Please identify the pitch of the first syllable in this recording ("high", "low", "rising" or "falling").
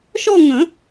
falling